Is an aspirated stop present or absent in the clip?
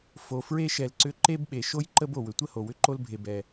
absent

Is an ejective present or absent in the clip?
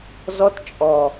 present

